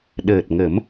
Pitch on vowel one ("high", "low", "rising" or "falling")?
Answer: low